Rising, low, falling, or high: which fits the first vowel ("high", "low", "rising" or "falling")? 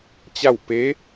falling